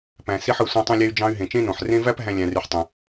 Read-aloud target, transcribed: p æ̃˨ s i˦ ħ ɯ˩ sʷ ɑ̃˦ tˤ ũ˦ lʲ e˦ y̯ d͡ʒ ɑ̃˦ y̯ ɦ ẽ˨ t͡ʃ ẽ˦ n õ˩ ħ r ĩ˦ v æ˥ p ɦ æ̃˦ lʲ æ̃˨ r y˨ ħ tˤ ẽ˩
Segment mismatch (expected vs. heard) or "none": ĩ˦ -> ẽ˦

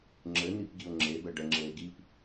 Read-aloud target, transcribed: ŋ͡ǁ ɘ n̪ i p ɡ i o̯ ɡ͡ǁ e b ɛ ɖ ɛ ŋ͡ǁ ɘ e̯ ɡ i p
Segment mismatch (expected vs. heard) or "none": ɡ͡ǁ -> ŋ͡ǁ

